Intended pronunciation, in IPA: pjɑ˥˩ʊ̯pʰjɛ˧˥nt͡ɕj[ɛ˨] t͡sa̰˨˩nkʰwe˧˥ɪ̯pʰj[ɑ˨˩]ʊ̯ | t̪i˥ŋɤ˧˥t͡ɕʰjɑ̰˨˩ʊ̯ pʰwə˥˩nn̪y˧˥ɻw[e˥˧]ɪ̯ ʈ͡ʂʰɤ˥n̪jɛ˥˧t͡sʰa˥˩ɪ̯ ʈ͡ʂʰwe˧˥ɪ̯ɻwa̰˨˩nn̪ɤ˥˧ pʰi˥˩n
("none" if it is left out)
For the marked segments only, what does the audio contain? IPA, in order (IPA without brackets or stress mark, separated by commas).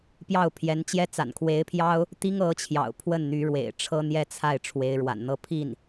ɛ˥, ɑ˥, ḛ˨˩